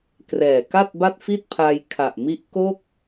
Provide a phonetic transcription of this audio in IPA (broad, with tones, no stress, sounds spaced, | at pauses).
k r ɛː˨˩ k a˥˩ t̚ b a˥˩ t̚ f i˥˩ t̚ pʰ a˧ j kʰ a˨˩ ʔ m i˦˥ ʔ k o˥˩ k̚